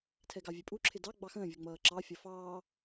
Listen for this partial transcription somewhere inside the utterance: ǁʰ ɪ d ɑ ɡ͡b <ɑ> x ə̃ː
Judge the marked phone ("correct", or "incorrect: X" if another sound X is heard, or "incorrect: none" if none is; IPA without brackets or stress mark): correct